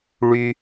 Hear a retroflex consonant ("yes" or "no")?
yes